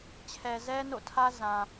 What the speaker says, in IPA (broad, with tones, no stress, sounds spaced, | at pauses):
t͡ɕʰ ɛ˨ z ɛ˦ n o̰˦˨ tʰ ä˦ z ã˨